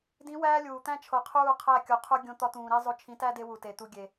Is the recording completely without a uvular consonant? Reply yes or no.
no